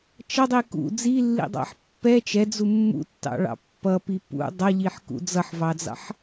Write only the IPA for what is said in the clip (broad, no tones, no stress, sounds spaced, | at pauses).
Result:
t͡ʃ ʌ dˤ i k ṵ d͡z i lː ḭ dˤ ɑ̰ ħ pː ɛ t͡ʃ ɛ d͡z u mː ṵ tː ɑ̰ ɭ ɑ̰ pː ʌ p i p ṵ dˤ ʌ ʎ i ħ k ṵ d͡z ʌ ħ v ɑ d͡z ɑ̰ ħ